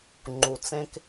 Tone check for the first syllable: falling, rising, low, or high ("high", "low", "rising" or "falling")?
low